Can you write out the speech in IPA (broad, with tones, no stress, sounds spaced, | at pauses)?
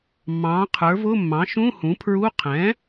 mː ɑ̃ː˩˥ qʰ ə˞˩˥ v ʊ˧˥˧ mː ɑ̃˩˥ ʃ ũ˧˥˧ h ũ˩˥ pʰ ɹ u˧˥˧ qʰ ɛ̃˩˥